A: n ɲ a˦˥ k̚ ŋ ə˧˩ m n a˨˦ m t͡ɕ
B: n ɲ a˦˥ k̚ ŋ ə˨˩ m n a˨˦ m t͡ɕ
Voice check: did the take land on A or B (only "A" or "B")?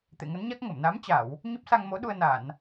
A